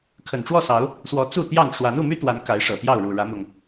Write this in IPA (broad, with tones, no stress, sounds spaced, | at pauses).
kʰ ə˨˩ n ʈ͡ʂ w ɔ˥˨ s ɑ˨˦ ʊ̯ | s w ɔ˨˦ t͡s u˥˨ t̪ j ɑ˥˨ ŋ ʂ w a˨˦ n u˥˨ m y˦ t̪ w a˨˦ n k a˨˦ ɪ̯ ʂ ɤ˨˩ t̪ j ɑ˥˨ ʊ̯ ɻ u˨˩ ɻ ä˨˦ m ʊ˨˩ ŋ